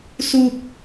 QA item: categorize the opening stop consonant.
plain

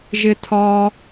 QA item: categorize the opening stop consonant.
aspirated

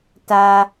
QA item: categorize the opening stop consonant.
plain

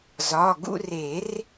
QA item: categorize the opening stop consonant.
plain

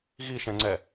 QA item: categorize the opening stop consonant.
click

